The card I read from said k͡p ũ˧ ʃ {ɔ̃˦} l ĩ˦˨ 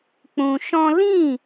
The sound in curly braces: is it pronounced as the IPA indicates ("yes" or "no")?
yes